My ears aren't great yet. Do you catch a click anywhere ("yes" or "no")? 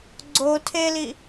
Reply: yes